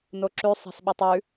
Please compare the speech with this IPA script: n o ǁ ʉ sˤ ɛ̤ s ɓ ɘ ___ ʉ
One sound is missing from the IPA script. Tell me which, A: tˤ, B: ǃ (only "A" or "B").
A